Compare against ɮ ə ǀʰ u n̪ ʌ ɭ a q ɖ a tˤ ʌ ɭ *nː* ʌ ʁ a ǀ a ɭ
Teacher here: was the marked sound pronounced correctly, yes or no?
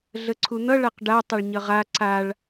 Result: no